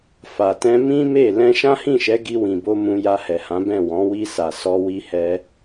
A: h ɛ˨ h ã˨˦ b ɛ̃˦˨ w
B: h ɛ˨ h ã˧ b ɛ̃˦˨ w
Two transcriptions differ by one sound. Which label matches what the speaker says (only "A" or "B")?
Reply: A